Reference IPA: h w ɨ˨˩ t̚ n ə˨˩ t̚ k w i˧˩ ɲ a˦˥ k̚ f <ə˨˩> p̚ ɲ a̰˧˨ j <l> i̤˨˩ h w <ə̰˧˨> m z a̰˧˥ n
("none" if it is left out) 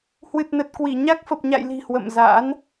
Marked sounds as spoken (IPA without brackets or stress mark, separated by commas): ə˨˩, l, ə̰˧˨